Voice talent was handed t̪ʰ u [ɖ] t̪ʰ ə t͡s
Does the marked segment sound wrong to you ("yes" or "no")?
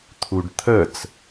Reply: no